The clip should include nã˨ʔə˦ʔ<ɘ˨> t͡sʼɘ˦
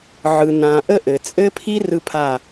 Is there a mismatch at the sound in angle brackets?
no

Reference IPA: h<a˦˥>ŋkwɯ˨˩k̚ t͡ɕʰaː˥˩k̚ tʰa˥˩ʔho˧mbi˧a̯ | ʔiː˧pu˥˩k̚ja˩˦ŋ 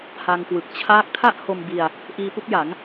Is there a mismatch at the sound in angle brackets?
yes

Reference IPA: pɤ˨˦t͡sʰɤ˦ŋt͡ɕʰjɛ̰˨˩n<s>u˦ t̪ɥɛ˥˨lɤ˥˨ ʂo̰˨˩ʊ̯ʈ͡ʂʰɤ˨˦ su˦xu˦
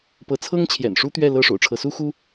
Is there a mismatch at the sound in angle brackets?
yes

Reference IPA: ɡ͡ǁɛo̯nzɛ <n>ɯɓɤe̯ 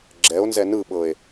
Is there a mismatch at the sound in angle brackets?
no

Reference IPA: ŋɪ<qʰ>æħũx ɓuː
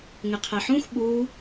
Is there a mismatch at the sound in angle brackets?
no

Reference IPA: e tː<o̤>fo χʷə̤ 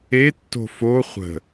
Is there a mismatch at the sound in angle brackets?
no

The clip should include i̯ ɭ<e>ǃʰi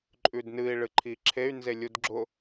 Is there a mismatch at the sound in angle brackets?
yes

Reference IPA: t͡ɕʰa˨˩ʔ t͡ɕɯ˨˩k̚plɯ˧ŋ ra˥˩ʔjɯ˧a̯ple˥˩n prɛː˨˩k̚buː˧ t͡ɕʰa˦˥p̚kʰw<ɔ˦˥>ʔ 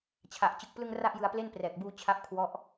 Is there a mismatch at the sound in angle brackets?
no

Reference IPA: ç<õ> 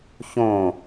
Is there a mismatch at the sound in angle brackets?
no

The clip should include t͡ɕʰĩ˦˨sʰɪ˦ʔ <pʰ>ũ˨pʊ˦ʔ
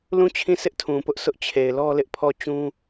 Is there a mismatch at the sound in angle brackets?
yes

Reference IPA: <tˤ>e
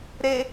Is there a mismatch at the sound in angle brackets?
yes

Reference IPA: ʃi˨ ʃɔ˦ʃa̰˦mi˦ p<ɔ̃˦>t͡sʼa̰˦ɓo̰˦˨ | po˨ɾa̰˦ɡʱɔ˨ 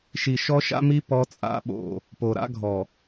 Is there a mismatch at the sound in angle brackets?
yes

